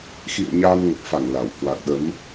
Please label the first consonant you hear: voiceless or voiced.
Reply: voiceless